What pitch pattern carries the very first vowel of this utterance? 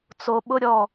low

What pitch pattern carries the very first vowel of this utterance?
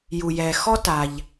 low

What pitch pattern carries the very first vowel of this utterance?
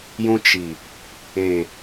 low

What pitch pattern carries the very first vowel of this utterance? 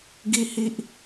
high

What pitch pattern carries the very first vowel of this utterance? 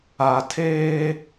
low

